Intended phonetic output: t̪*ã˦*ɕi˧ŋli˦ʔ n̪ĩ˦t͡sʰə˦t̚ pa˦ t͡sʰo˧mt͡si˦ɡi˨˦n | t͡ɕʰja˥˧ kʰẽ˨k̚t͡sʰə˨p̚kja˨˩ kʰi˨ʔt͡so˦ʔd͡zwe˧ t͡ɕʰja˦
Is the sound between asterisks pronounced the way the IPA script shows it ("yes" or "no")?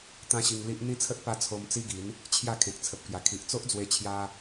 yes